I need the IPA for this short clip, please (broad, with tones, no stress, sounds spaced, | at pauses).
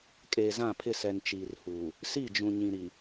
kʼ eː˨ z ã˦˨ pʰ ɪ˦˨ s ɛ˨ n t͡ʃ iː˨ r h uː˨ | s i˦˨ d͡ʒ ũ˨ ɲ ĩ˨ ɾ i˨